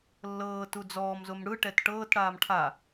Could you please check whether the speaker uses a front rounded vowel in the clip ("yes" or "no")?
no